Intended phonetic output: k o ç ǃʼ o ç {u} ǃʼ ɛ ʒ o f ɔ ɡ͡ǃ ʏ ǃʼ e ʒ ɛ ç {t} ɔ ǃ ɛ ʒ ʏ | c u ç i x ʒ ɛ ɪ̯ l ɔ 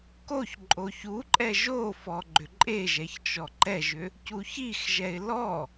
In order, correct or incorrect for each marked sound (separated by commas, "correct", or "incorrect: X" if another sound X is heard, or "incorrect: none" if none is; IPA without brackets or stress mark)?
correct, incorrect: t͡ʃ